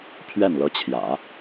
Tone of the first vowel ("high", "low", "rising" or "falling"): falling